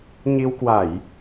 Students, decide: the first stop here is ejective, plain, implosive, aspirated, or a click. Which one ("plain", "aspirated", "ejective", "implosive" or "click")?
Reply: plain